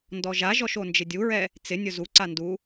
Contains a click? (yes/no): yes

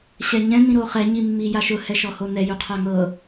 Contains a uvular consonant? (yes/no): yes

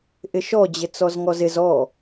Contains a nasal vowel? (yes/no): no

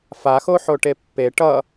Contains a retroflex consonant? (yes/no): yes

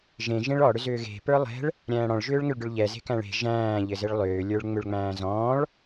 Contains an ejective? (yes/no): no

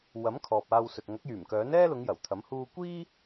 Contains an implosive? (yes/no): no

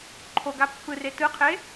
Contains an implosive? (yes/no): no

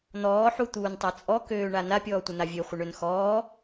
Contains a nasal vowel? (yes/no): no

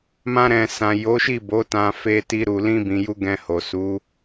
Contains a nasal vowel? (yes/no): yes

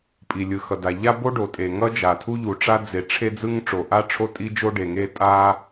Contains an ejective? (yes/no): yes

